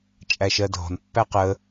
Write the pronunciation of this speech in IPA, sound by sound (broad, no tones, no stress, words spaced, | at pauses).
t͡ʃʼæʃɜdʱɔ̤n pːæqə